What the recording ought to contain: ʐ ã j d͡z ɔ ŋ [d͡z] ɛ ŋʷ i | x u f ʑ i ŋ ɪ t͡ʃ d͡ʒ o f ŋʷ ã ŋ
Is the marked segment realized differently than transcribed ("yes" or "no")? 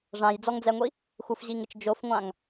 no